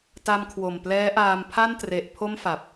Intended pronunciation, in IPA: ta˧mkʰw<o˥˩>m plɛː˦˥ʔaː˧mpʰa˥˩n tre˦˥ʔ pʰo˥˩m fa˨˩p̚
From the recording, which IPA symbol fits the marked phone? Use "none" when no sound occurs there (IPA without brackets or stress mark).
o˨˩